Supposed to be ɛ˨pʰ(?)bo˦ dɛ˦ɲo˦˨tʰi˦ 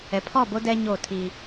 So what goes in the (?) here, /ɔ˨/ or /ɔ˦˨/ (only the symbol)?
ɔ˦˨